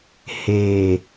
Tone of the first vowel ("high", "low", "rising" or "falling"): low